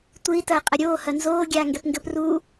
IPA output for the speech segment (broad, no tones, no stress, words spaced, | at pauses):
tʷɨi̯ tɐːqʼɐɾʲoː hɐnzoː ɡʲaːŋɡɛpŋɡɘp ru